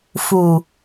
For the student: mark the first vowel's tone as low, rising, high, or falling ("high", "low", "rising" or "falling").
low